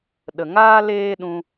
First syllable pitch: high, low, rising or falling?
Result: low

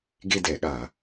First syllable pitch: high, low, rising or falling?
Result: falling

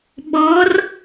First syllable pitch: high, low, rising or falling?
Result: rising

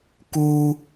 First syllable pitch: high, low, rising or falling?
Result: high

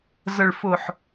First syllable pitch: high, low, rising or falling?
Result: low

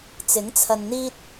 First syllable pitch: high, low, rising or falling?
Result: rising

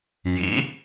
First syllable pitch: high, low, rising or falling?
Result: rising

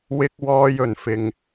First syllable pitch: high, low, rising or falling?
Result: high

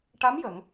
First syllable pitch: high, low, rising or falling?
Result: rising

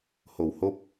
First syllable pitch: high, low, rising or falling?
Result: low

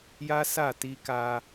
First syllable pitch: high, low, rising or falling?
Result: high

